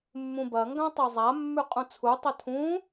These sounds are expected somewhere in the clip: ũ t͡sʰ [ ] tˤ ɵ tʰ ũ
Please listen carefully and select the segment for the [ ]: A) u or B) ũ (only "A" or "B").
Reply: A